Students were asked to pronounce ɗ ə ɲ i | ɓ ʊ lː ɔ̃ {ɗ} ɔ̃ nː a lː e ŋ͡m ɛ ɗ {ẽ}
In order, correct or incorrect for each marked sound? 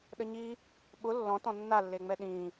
incorrect: t, incorrect: ĩ

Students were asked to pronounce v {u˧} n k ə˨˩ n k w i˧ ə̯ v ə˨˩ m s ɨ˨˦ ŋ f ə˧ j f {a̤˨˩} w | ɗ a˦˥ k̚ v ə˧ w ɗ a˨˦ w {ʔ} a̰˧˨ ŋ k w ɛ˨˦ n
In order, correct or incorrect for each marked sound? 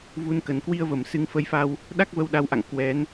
correct, incorrect: a˧, correct

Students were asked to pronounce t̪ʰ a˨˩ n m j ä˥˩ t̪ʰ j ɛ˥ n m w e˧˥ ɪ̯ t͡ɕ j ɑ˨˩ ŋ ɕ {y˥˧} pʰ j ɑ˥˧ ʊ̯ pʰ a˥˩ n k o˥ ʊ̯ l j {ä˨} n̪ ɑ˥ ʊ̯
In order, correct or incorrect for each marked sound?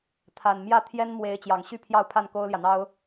correct, correct

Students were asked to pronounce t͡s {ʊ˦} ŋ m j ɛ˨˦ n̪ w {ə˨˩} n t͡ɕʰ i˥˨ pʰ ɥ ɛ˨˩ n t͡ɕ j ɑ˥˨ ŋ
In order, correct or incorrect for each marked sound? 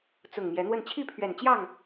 incorrect: ʊ˨˩, incorrect: ə˥˨

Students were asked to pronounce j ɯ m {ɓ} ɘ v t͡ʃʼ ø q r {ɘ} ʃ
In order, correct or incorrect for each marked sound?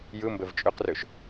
incorrect: b, incorrect: ø

